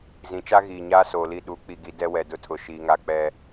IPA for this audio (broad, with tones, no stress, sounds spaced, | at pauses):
z ĩ˨˦ t͡ʃ a˦ ɣ iː˨ ɲ aː˦ s oː˨ l i˦˨ ɗ u˨˦ k͡p i˨ ɡ i˨ d ɛ˦ w ɛ˨ d ʊ˦ tʰ ʊ˨ ʃ iː˨ ŋ a˦ k͡p ɛ˦